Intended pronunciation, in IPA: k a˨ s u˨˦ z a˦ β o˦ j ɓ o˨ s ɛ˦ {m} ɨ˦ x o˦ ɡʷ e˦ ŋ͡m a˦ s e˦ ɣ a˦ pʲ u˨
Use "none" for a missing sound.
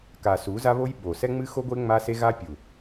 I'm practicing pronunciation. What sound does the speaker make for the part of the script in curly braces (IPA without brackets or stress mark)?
ŋ͡m